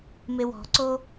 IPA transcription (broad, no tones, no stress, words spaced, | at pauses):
mewɔ̤ǀo